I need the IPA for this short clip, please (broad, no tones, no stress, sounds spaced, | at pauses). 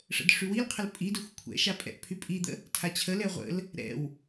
ʂ ə̰ d ʂ y w i l qʰ ə l pʼ i d e xʷ kʷʰ ɛ̰ ʃ a pʼ ɛ̰ ʔ pʰ y pʼ i d̪ ə̰ | tʰ a t͡ɕʰ ə l ɛ ʁʷ ə̰ l | ɾ ɛ̰ w